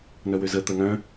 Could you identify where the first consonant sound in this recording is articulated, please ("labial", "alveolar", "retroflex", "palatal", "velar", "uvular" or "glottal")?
alveolar